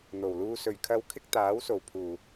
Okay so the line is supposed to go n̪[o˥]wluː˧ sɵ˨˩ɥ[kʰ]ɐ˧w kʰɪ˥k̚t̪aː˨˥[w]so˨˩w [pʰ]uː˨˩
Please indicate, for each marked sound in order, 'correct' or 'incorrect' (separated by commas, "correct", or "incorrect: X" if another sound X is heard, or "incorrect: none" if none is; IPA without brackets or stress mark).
incorrect: o˨˩, correct, correct, correct